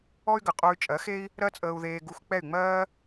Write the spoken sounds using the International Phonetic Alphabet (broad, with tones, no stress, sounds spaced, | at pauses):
ɔ˥ y̯ ɡ ə˩ qʼ o˧ y̯ t͡ʃʼ ɜ˩˥ x e˥ i̯ | ɾ ɜ˥ t͡sʼ əː˧ u̯ ð eː˧ ɡ u˧ x k͡p ɛ˥˩ y̯ ŋ͡m ɜː˥